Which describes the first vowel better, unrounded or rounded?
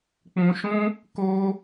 rounded